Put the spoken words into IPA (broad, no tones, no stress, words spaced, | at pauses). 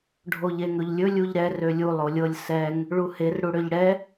ɖʱoʎeŋɵʎlʲɵ lʲuʎɾɛr ølʲu lˠolʲɤlʲ sɛŋ | ɭuher ɽuɽøʎɽɛ